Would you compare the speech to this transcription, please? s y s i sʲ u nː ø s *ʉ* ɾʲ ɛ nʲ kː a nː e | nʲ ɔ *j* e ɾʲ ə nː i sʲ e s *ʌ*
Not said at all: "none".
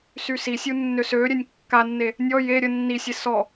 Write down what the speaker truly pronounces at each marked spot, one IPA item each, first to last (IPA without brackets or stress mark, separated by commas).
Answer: ø, j, ɔ